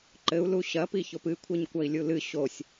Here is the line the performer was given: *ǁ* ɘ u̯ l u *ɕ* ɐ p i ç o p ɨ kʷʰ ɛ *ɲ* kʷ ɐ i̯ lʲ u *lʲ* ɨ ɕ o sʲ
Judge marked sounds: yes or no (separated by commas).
no, yes, yes, no